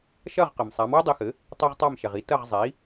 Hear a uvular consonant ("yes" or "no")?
yes